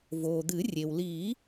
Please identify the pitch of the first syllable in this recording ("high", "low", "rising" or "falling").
low